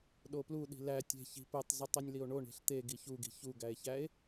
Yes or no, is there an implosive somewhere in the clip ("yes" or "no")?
yes